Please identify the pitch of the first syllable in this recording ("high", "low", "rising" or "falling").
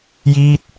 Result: falling